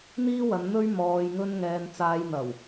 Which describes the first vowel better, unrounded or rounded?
unrounded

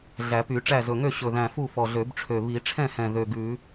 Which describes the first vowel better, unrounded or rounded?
unrounded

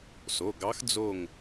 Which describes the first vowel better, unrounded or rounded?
rounded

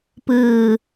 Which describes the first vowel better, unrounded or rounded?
unrounded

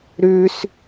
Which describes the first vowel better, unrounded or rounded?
rounded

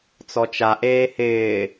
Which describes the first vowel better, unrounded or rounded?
rounded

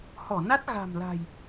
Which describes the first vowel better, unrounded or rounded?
rounded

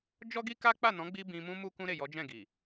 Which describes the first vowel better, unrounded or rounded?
rounded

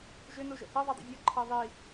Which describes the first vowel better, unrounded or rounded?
rounded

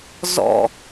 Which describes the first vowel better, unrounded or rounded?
rounded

